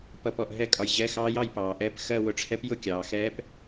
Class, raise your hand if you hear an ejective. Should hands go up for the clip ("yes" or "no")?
yes